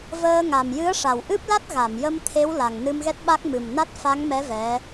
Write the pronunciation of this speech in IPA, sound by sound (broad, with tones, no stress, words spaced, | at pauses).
vəː˧ ŋa˨˩mjɨ˧˥ə̯ʂa˨˩wʔɨ˦˥p̚ la˦˥t̚ɣa˨˩˨mjə˧m t̪ʰe˧˥wla˨˩ŋ nɨ˧mɣɛ˦˥t̚ɓa˦˥k̚ mɨ˨˩mna˦˥t̚fa˧˥ŋmɛ˧˥ vɛ˧˥